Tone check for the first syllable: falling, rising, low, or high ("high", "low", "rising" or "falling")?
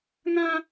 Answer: high